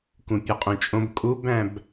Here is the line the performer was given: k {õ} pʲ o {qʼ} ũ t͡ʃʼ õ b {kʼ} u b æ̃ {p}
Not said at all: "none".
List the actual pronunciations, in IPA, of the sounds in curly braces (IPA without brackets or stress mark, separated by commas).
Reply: ũ, qʼ, kʼ, b